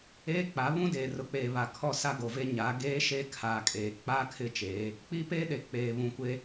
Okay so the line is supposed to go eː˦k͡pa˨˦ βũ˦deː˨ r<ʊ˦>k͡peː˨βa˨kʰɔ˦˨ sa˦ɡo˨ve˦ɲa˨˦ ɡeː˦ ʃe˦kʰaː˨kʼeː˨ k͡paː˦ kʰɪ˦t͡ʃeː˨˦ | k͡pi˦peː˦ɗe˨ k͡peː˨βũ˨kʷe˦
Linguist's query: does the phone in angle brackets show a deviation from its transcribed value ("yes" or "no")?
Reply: yes